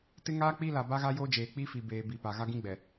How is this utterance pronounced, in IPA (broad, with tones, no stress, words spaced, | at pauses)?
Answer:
tɪ˦ŋaː˦k͡pi˦ la˨ba˦ɣa˦joː˦ d͡ʒeː˨ k͡pi˦fi˨beː˨ bi˨ pa˨ ɣa˦ɡĩ˦ ɡ͡bɛ˨